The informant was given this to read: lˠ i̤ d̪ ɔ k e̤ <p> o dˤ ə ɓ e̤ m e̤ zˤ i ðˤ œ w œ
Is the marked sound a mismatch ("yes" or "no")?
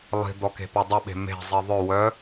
no